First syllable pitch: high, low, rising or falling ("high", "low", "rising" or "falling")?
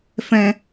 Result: high